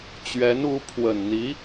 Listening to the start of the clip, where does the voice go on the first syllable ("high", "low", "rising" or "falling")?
rising